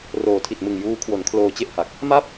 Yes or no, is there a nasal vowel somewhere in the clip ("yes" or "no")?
no